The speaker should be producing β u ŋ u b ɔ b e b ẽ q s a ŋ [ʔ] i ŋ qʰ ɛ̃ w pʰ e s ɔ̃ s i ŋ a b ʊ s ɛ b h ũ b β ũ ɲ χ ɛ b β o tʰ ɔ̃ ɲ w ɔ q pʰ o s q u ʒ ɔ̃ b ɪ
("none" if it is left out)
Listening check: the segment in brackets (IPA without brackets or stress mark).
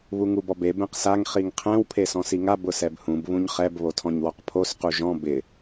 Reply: χ